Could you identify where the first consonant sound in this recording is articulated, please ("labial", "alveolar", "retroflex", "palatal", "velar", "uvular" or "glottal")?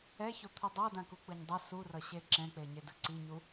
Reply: palatal